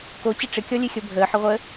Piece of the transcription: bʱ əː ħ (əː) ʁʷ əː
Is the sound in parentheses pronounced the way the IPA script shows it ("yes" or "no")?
no